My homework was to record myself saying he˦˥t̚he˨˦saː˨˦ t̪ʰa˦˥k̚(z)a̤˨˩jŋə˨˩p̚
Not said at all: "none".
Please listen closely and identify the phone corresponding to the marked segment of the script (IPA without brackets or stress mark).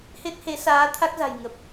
z